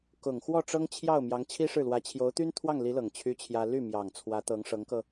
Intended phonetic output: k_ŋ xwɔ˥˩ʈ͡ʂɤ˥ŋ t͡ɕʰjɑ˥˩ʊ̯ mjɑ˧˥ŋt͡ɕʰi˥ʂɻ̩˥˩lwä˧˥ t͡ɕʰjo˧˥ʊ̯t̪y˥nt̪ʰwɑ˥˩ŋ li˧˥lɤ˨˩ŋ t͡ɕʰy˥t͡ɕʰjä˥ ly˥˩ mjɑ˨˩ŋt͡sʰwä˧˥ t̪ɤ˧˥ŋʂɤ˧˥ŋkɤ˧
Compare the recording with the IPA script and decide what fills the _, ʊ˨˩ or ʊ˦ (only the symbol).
ʊ˨˩